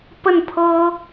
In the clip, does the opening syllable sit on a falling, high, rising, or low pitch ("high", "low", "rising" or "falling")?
falling